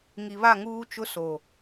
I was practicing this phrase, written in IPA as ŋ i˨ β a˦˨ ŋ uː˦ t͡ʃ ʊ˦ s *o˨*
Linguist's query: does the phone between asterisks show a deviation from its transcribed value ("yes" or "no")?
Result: no